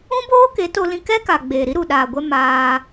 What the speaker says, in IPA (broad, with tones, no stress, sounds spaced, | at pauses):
ũ˦ b oː˦ k e˨˦ t o˧ l ĩ˧ k ɛ˦ k a˨ ɡ͡b eː˨ ɾ i˦ ɾ u˨ ɗ aː˨ ɡʷ ɛ˧ m aː˧